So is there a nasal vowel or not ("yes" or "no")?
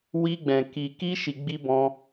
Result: yes